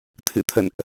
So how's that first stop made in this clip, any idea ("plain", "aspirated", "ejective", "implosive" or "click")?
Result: aspirated